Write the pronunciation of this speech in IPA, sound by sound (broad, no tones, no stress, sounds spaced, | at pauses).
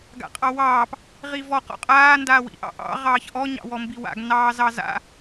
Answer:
ɡ a̰ qʼ ɑ w ɑː p | ʁ i v ɔ q ɔ̰ qʼ aː n d aː w ḭ ʔ ɑ̰ ʔ ɑ̰ ʁ ɑː ç ʔ ɔ ɲ ɑ̰ w ɔ m b i w a̰ ɡ n ɑː z ɑ z a̰